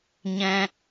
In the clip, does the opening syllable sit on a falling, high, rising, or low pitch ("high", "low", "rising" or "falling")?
low